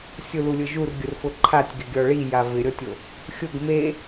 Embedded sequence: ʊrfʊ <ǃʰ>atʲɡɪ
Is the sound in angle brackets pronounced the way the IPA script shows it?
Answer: yes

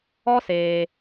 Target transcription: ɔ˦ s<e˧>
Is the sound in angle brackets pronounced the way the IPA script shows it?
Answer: no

